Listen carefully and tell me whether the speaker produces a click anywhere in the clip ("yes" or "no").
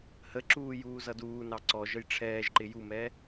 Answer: yes